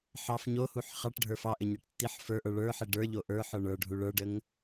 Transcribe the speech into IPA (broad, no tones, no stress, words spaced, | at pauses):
ħɑf ɲohuħ χɑʈɖʱə˞ fɑʔɘɲɛʈ tːiħ fə˞ʔə˞ ɭə˞ħe ɖə˞ʎo ʔə˞ħə˞ ɳə˞ɖʱu ɭə˞ɖəŋ